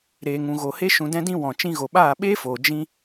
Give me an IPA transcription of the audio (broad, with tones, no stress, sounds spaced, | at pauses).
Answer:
ɾ eː˨ ŋ ũ˨ ɣ o˨ h e˦ ʃ ũ˧ d ɛ̃˦ d ĩ˦ w ɔ̃˨ t͡ʃ ĩ˧ ɣ o˨ ɓ aː˦˨ ɓ eː˦ f oː˨ d͡ʒ ĩ˦